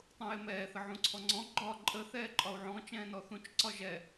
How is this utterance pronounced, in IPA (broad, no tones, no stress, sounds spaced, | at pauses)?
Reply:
tˤ ũ j ɪ m ɛː θ ə ʕ ũ ǀʰ ɔ ŋ͡ǀ ɔ̃ ɡ͡ǃ ɒ ǃʼ ə θ ɛː ǃʼ ɒ u̯ ʕ ɔ̃ t͡ʃ ɛ̃ː n ɔ θ ũ t͡ʃ ǀ ɒ ʒ ɛ